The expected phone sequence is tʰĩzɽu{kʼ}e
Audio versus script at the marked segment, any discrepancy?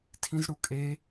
no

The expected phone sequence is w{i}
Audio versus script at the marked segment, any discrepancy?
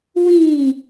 yes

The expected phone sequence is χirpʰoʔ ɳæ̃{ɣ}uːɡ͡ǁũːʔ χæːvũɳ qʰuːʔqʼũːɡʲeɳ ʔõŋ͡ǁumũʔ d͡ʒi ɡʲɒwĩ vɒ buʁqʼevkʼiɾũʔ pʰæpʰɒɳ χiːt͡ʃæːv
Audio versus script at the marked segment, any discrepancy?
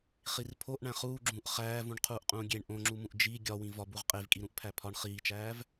yes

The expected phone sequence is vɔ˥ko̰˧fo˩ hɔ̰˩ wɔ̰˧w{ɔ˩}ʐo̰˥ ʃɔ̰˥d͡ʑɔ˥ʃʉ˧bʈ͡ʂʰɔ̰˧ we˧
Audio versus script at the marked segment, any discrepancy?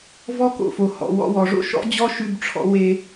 no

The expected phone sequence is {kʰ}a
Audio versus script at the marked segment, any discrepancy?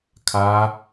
no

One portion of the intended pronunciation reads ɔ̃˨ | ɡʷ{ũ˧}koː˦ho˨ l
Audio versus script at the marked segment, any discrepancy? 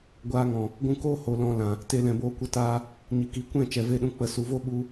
no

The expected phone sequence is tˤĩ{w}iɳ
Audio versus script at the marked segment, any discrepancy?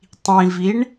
yes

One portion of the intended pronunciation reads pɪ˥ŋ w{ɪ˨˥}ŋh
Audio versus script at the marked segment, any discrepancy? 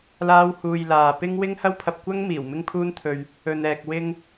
yes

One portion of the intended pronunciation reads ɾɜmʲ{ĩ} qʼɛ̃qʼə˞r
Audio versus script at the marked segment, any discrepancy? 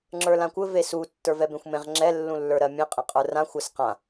yes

